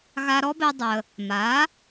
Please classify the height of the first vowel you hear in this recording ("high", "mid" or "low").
low